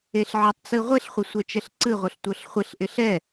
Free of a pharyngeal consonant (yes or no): no